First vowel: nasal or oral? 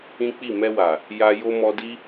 nasal